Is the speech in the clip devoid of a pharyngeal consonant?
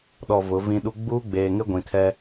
yes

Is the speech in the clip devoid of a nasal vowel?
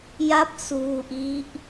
yes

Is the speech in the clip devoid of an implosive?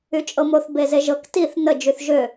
yes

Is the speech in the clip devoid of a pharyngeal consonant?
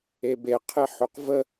no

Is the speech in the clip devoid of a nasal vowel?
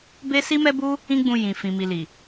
no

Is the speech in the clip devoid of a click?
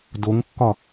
yes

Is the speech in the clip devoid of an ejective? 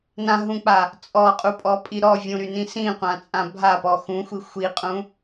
no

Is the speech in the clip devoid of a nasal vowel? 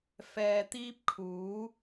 yes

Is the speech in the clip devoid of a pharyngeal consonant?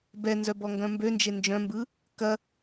yes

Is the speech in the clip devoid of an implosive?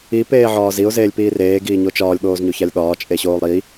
no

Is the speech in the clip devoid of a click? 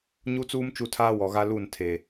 yes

